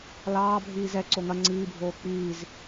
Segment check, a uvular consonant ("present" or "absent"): absent